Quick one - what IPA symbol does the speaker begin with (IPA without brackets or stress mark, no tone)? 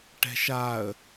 ʈ